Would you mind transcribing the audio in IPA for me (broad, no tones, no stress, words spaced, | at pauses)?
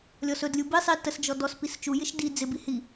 lʲɔsɵdlʲu bisˤi təsd͡ʒɔ dɔs pist͡ʃujɪʃ di d͡zɪbi hi